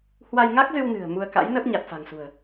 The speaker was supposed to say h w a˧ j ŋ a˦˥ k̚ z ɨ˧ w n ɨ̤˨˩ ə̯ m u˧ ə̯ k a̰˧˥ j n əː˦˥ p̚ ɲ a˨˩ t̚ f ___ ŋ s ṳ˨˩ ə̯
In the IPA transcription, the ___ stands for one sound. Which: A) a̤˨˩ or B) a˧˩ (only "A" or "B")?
A